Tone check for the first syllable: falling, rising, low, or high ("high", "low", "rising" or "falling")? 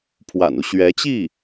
low